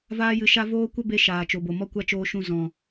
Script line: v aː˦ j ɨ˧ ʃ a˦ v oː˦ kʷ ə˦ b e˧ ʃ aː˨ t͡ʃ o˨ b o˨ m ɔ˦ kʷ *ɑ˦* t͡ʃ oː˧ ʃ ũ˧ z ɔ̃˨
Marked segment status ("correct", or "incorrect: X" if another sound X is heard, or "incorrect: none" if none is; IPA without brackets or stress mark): incorrect: a˦